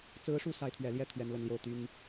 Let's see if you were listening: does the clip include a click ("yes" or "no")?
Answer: no